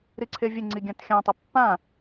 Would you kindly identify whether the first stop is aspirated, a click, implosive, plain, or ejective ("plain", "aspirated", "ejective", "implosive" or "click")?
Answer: click